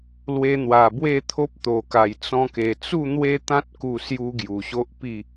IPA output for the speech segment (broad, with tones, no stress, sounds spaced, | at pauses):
l w e˧ n̪ w a˨˩ b w e˥˧ t̪ʰ o˦ p̚ t̪ o˨˩ k a˨˩ j t͡s ɔ̃˧ k e˨˩ t͡s u˥˧ n̪ w e˦ t̪ ã˦ t̚ k u˧ s j u˦ ɡ j u˨˩ ɕ o˦ ʔ p i˥˧